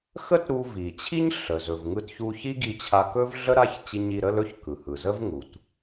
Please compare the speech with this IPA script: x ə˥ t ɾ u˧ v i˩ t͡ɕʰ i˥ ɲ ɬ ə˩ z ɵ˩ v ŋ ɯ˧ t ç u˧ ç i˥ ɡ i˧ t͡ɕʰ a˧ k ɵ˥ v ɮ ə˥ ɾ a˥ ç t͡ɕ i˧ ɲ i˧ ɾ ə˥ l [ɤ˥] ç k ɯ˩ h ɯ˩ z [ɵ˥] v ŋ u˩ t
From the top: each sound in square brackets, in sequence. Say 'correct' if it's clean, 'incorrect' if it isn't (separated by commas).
incorrect, incorrect